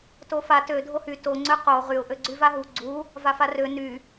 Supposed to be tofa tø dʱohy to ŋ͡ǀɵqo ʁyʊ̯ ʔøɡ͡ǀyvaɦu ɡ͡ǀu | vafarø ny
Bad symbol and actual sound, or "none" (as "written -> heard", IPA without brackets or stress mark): ɵ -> ø